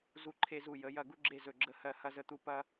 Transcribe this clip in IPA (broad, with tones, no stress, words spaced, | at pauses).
zu˦ǃʰe˦zu˦˨ jə˨˦ jɐ˦˨ ɡu˦ɡ͡ǁe˦˨ zɵ˦˨ɡ͡ǁə˦hɜ˦˨ hɐ˦zə˦˨t̪u˦ pɐ˦